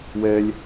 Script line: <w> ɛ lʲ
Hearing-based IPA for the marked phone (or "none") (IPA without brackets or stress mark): w